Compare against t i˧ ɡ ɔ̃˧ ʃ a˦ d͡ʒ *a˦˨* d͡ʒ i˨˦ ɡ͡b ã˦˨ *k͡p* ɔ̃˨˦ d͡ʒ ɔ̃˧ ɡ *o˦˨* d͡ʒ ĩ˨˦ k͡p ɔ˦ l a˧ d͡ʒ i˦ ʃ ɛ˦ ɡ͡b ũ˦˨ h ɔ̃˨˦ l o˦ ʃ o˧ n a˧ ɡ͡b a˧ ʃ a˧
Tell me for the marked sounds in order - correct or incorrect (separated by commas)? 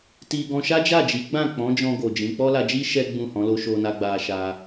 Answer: correct, correct, incorrect